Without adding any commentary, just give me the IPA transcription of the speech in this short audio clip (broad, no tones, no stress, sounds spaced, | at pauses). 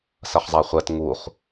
s ɐ χ zˤ a χʷ ɛ t ŋ u χ